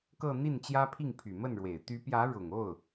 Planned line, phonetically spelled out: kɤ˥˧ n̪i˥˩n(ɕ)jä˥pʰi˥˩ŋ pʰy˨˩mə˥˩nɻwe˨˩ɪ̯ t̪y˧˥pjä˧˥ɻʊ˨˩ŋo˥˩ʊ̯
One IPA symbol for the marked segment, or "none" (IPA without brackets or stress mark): t͡ɕ